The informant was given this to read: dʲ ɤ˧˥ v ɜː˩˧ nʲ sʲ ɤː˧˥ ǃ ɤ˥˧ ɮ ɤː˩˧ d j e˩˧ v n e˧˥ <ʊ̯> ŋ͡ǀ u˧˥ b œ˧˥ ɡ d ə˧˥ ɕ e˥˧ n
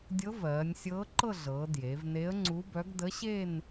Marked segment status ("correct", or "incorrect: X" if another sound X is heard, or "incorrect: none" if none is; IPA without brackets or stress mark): incorrect: ə̯